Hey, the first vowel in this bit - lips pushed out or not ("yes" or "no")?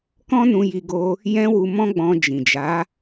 yes